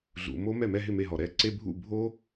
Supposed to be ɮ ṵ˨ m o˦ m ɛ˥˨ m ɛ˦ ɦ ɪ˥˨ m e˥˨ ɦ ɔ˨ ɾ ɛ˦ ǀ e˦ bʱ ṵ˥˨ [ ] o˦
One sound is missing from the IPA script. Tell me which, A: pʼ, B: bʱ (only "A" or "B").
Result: B